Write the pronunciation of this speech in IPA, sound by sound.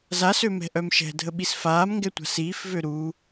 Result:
z a s ø m ɛ̤ ʔ œ m ʃ ɛ̤ dʱ ə ɓ i s f aː m ŋ ɡ ɛ tʷ a̤ s iː f v ø ɾ u

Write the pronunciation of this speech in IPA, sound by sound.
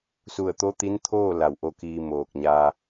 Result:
s u˧˩ ə̯ t̪ o˧˥ t̪ i˧˥ n t̪ʰ oː˥˨ l a˧˩ w ʔ o˧ k iː˧ m oː˧˩ k̚ ɲ a˧

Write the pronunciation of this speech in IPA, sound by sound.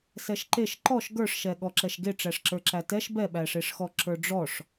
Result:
s ɛ ʃ ǃ e ʃ ǃ ɔ ʃ ɡ ə˞ ʂ ʃ ɛ ɠ ɔ ǁ ɛ ʃ ɡ e ʈ͡ʂ æ ʂ ǁ ə˞ ǁ æ t ɛ ʃ b ɛ ɓ æ ʂ e ʂ x ɔ ǁ ə˞ ɖ͡ʐ ɔ ʂ

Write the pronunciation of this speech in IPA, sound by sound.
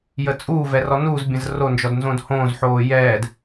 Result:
j ə t͡sʼ uː v ɛ r ɔ n uː z bʲ ə̃ z r o n d͡ʒ ɔ d n z õ d h õː z ħ oː j ɛː d

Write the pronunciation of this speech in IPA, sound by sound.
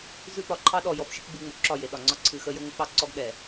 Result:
z ʉ˦ p ɒ˨ ǃʰ ɑ˦ ɗ ɔ˨ j ɔ˨ f ʃ e˦ kʷ ɡ͡b ʉ˨ ŋ͡m o˨ ǁ ɒ˦˨ j e˨ ɗ ɒ˨ ŋ͡ǀ ɒ˦ ǀʰ ɨ˨ x ə˦ j ə˦ ŋʷ ə˨˦ k͡p ɑ˦ ǀ ɔ˦ ɡ ɗ ɛ˨

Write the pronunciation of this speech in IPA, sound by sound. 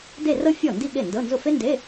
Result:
d e˥˧ r ɤ˥ fʲ ɔ˥˩ n d i˥˧ ɠ e˥˩ n d ɤ˧˥˧ n z ʊ˥˩ f e˥ n d e˧˥˧

